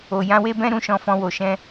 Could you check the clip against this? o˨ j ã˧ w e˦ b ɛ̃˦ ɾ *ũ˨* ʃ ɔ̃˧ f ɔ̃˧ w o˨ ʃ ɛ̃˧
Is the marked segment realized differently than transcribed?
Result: yes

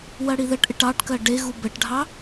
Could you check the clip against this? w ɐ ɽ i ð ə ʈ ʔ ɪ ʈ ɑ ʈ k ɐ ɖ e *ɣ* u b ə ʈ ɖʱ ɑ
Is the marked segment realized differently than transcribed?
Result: no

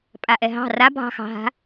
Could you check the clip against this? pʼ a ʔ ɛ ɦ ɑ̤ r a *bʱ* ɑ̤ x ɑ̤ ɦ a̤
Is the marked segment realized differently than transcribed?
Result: no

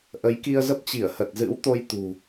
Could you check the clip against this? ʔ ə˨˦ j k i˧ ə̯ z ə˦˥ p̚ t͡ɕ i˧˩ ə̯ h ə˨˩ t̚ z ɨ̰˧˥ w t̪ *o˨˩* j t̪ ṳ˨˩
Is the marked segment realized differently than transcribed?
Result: yes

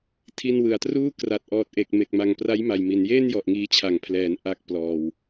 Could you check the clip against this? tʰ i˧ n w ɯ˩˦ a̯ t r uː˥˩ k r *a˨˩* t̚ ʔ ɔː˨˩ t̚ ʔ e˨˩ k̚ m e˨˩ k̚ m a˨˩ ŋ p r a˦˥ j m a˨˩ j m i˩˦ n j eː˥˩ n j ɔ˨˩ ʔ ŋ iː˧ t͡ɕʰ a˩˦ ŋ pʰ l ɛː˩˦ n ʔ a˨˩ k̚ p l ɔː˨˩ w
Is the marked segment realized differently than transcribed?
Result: no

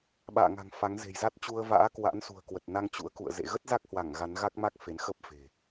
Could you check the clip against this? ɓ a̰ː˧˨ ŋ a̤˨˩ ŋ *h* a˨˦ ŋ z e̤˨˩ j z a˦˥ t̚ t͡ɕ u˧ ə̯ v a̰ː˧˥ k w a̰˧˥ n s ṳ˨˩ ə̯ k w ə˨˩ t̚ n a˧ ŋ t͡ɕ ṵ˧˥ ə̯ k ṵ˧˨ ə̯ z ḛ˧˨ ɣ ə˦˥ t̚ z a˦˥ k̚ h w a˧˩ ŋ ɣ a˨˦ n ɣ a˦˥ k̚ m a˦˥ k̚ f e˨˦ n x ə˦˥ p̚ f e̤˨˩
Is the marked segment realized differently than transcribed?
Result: yes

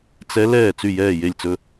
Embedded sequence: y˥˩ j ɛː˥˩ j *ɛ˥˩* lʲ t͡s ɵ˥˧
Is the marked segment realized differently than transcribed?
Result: yes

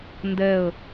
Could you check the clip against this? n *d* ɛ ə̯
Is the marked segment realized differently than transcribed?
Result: no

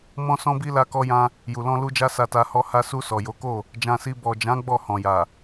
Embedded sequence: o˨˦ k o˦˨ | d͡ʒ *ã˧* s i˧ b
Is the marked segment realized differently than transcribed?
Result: no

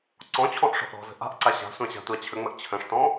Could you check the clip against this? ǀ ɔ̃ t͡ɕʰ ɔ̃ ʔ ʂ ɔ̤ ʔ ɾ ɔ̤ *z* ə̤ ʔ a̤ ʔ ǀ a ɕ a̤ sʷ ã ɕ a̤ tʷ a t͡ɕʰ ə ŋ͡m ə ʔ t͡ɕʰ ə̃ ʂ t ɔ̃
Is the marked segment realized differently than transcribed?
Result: no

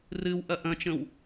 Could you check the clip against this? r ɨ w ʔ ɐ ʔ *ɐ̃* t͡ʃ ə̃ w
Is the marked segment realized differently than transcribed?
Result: no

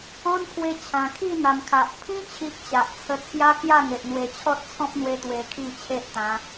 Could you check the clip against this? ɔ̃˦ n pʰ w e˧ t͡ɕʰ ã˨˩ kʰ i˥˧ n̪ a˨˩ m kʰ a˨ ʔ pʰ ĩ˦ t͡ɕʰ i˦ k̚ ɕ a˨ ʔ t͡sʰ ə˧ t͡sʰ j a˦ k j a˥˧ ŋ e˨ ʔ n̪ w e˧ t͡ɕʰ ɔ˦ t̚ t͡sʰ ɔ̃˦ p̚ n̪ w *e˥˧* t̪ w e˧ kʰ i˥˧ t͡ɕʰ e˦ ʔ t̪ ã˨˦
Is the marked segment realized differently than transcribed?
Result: yes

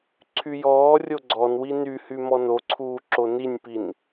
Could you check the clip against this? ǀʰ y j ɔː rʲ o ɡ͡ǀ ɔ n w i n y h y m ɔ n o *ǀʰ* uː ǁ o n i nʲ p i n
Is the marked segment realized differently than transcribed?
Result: no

